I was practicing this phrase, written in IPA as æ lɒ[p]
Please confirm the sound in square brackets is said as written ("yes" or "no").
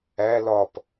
yes